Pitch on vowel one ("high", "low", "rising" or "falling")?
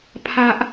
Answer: low